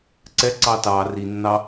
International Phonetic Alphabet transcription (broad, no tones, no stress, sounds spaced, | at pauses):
ǀ ɛ ǀ ɑ t ɑ r i nː ɑ